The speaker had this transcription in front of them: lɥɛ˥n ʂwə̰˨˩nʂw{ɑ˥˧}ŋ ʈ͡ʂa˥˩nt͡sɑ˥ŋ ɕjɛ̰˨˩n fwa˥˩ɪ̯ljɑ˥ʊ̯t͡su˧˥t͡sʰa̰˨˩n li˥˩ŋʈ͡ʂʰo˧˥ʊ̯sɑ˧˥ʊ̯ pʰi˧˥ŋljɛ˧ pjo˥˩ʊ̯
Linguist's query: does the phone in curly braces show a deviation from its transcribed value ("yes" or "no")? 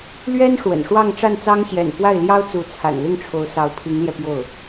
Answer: no